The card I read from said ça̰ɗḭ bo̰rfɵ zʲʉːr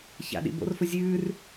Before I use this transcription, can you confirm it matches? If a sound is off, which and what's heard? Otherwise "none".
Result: none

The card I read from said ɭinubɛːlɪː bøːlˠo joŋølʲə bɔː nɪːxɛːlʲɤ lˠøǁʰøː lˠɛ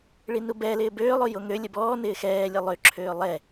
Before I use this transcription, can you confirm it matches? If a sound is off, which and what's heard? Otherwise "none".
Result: none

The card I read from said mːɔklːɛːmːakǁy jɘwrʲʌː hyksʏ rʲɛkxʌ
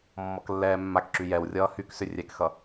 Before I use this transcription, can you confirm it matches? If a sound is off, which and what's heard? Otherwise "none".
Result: ɘ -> ɛ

